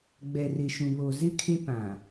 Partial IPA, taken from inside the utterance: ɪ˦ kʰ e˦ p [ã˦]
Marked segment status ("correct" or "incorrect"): incorrect